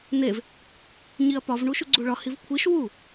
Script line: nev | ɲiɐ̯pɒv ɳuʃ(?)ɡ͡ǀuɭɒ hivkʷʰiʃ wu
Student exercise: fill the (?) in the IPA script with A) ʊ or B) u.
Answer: B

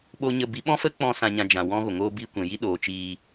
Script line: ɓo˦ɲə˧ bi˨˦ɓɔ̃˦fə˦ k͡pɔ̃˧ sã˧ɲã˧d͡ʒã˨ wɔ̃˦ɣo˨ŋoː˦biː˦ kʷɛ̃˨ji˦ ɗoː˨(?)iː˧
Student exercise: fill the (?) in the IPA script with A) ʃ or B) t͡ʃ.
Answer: B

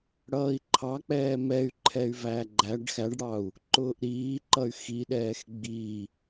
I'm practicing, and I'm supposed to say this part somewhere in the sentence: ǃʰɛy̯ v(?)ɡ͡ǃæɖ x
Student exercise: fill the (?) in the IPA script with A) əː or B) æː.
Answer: B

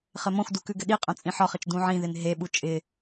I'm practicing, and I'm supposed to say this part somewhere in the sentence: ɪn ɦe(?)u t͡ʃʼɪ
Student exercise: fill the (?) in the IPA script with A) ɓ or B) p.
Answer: A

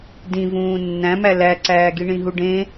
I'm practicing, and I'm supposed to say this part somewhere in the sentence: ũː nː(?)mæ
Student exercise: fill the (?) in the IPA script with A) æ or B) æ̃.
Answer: B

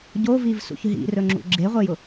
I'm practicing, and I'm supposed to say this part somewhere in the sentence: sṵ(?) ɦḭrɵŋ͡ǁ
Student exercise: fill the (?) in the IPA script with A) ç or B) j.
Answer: A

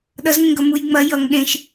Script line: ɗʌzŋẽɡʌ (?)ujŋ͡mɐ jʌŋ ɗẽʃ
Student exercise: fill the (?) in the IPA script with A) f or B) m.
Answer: B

